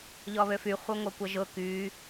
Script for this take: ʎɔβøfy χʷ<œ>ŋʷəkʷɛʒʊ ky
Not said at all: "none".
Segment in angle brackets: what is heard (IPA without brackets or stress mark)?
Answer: œ